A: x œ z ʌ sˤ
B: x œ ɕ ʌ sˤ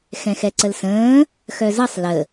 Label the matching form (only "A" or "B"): A